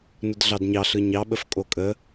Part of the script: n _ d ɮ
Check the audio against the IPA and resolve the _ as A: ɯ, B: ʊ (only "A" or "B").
B